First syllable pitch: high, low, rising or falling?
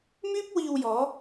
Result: high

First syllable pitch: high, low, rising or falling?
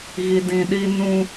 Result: low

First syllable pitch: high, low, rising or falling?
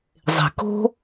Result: low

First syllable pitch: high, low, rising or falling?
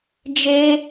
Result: high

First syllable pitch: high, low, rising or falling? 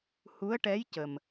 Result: rising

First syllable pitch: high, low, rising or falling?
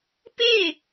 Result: falling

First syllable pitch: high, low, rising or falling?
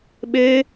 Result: high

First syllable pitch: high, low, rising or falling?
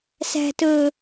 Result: low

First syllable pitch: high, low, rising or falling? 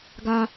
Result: high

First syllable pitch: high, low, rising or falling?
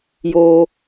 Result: low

